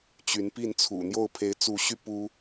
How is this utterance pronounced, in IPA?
t͡ɕy˨˦npi˥˨nt͡sʰṵ˨˩ n̪jo˥˨ʊ̯pʰe˨˦ɪ̯t͡su˨˦ɕy˧ pu˦

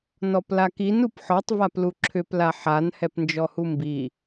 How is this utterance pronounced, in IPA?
nɔplakin upħɔtˤ vapluǁʰʏp laħan hɛpnd͡ʒɔhumbi

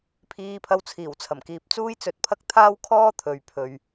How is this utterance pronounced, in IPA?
pʰiː˧pʰɐ˧w t͡sʰiː˨˩wt͡sʰɐ˨˩mkiː˨p̚t͡suː˥j t͡sɵ˧t̚pʰɐ˥k̚ t̪ʰaː˥wkʰɔː˥ t̪ʰɵ˨ɥpʰɵ˨ɥ

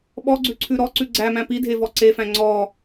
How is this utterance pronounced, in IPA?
ɓɔɡ͡ǀʉǀʰʉ ɾɔǀʉ ɡ͡ǀæmæ̃ pidʱevɔ ǀefæ̃ ŋ͡ǀɔ

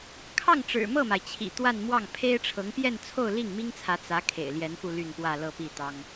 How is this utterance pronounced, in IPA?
kʰɑ˥˩ŋʈ͡ʂɻ̩˨˩mɤ˥˩ma˩ɪ̯ t͡ɕʰḭ˨˩ t̪wa˥˧nmwɑ˥˩ŋ pʰe˥ɪ̯ʈ͡ʂʰɤ˧˥ŋpjɛ˥˧nt͡sʰo˥˧ʊ̯ li˥˩ŋmi˥ŋt͡sʰä˧˥ t͡sä˧˥ kʰḛ˨˩ɪ̯ljɛ˧˥nfu˧ ly˥˧npwä˥˧ lɤ˥˧pi˥˩t̪ɑ˥ŋ

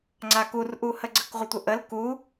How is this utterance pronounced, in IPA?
ŋ͡ǀakurʔuhə ɡ͡ǀəkʁʷətʷəʔəl ku

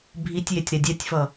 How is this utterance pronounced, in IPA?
bʱitʲjetʲ ɾɛdʲɛtʲfʌ

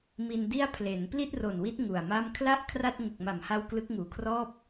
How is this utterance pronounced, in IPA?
mi˧n di˥˩a̯ pʰle˩˦n pli˥˩t̚ro˨˩nwi˦˥t̚ ŋu˨˩a̯ma˥˩m kʰla˥˩ʔ kʰra˥˩t̚ ŋu˨˩k̚ma˨˩mha˧w klɯ˦˥k̚ŋuː˨˩kʰrɔː˥˩p̚

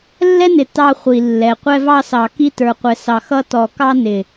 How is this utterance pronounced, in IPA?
lːɛ˦nɪ˨ tɑ˦χʷi˨ lːɛ˨ qʷɛ˦vɑ˦sɑ˨ ki˦tə˞˨ qʷɛ˨sɑ˨ xʌ˦ tɔ˨kɑ˦nɪ˨

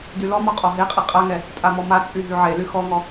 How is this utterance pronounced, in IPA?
dylɔmɔ qʼɔɦeqʼe qʼaŋɛ | tʼamɔmat͡sʼy ɦyʕely xɔŋɔ

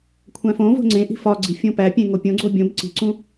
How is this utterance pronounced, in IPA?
kʷʰæ̃fõvo̤ ŋ͡ǀẽ ʔi̤fɒɡ͡ǀi̤ fʲõpæpʲẽ ŋopʲõɡ͡ǀo bʲõb ǀi̤ǀũ

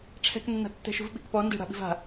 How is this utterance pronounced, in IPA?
ʈ͡ʂʰɛ̤knːa̤tːɛ̤ʃṳv ɓi̤kpɔ nde̤ɽa̤ ɓi̤va̤

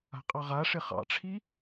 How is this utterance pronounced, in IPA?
a̤qʼɑʁa ʂɪχɑ̰ʈ͡ʂʰi

